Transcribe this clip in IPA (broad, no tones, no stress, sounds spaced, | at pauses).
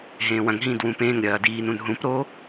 ɦ ẽː w ɐ̃ ŋ ɦ ĩː d w ũː p ẽː ŋ ɾʲ ɐː d iː n ũ n ɦ ũ p ɾ o